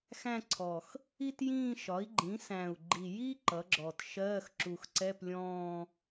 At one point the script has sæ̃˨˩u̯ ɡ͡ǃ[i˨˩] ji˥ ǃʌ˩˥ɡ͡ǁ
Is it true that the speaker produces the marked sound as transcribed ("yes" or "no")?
yes